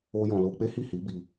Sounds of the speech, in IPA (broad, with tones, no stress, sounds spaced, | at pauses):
o˧ j ɔ̃˨ l o˧ k͡p e˦ h i˦˨ h i˨˦ b i˧